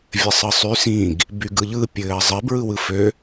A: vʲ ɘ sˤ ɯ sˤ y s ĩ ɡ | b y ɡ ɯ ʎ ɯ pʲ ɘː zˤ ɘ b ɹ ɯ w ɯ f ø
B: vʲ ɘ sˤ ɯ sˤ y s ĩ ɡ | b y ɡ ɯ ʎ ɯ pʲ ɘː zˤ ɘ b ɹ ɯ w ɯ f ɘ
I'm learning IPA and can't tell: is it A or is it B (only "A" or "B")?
A